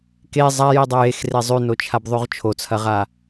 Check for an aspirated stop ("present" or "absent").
present